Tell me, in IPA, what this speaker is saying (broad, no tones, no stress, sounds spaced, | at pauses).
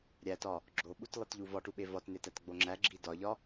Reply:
ɾʲ æ t ɒ | ɡ͡ǁ o ɓ u t lˠ i t ʎ u v ɒ ʈ u ɓ e v ɒ t n e t æ t ɡ͡b o ŋ͡ǁ æ ɡ͡ǁ i d ɒ ʎ ɒ